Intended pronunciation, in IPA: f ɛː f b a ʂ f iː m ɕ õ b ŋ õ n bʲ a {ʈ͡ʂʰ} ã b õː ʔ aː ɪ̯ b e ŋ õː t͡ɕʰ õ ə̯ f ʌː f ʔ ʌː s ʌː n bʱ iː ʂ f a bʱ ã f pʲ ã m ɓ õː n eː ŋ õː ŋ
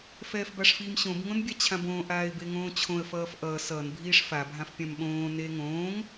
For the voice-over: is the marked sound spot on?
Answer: no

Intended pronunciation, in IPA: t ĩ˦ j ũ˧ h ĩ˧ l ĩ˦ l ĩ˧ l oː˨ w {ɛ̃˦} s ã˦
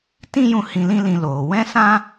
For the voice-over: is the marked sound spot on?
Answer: yes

